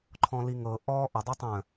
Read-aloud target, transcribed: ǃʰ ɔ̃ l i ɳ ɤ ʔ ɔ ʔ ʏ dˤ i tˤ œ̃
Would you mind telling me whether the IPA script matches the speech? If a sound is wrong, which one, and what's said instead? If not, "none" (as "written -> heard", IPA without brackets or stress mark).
ɳ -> ŋ